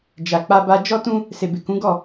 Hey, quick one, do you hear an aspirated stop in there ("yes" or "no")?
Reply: no